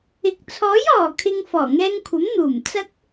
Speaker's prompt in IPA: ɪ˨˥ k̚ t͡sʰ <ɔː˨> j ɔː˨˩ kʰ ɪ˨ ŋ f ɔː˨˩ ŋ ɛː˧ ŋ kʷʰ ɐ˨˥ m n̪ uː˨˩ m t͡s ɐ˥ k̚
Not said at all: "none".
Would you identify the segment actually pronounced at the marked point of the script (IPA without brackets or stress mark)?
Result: ɔː˨˥